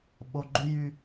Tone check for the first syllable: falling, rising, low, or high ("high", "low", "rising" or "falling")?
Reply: low